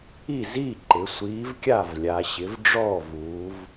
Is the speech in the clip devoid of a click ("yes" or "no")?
no